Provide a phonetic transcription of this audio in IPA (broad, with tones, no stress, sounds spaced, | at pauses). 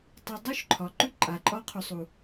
tˤ ɛ˧ dˤ u˦ ʃ ǃʰ ɒ˨ ǃ ʉ˦ ǃʼ a˨ ǃʼ ɒ˦ qʰ ʉ˧ sˤ u˨